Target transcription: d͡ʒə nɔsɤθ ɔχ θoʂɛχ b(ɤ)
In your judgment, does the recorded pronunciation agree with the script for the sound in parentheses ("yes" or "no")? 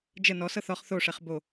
no